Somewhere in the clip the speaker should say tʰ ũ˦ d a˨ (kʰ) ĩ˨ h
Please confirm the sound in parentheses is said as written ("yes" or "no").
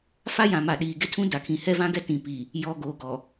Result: yes